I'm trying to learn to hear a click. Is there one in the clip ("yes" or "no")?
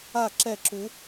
yes